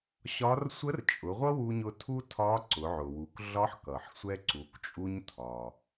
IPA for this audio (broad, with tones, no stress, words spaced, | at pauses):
ɕɒ˧˥r sʷə˧˥rt͡ʃʼʊ˩˧ ʁʷʌ˥wu˧ɲʊ˧ tʰu˥tʰɒ˧˥ǀʊ˩˧ʕʊ˩ wu˩˧kɮɒ˧˥ħkʌ˩ħ sʷɛ˧ǀu˩˧kt͡ʃʼu˧ɲ tʰɒ˩